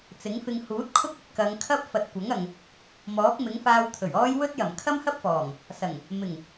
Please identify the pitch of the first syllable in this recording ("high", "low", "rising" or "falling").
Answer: rising